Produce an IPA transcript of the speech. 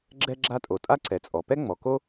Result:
ɡ͡ǁ ɛ˥ ɡ͡ǁ a˥ tʼ o˩ tʼ a˥ ǀ ɛ˩ t͡sʼ ɔ˩ p ɛ˥ ŋ͡m ɔ˩ k o˥

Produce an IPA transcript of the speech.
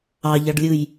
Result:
ɑ ʎ ɑ ɖ lʲ ɯ j

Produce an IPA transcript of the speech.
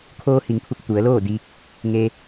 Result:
kʰ oː˧ h i˩˧ ŋ pʰ u˧˩ k̚ t̪ u˩˧ ə̯ l oː˥˨ d i˧ k̚ | ŋ e˧

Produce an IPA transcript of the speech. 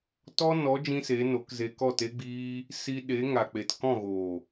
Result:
t ɔ˦ n ɔ˨˦ d͡ʒ ĩ˦ s e˨˦ n o˨˦ k z e˧ k ɔ˦˨ t e˦ ɡ͡b iː˦ | s i˧ ɗ e˨˦ ŋ a˨ k͡p e˨ t k ɔ̃˦˨ ɣ oː˨

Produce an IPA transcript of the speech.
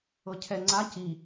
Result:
ɤ cʰ ɛ ŋ͡ǀ a c i

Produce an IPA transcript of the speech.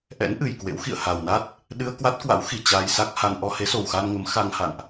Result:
ʔ ɛ̰˧˥ n ʔ ɨ˨˩ j k w ḛ˧˥ w x ḭ˧˨ ə̯ h a˨˩ w n a˦˥ t̚ | ɗ ɨ˧ ə̯ k w a˦˥ t̚ k w a̰˧˥ w x i˨˩ t͡ɕ a˧ j s a˦˥ k̚ h a˧ n ʔ ɔ˧ h e˨˦ s o˨˩ w x a˧ n ŋ ə˨˦ m x a˧ ŋ h a̰˧˨ n ʔ

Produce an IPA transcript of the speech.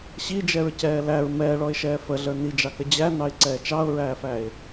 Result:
ɕ i d͡ʒ ɛ ɹ c ɛː l æ ɹ m ɛː ɭ ɔ ɪ̯ ʃ ɛː f ə ɮ ə˞ n i d͡ʒ ɑ k ə d͡ʑ æ n ɑ ɪ̯ ǀ ɛː t͡ʃ ɑ ʊ̯ ɹ æː f æ ɪ̯

